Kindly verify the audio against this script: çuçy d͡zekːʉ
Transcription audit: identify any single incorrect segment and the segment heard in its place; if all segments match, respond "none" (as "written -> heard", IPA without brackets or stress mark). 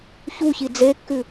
y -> i